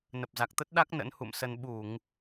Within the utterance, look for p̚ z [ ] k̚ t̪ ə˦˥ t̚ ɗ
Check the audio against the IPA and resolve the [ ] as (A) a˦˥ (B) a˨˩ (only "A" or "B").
B